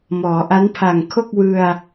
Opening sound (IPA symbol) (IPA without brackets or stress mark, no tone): m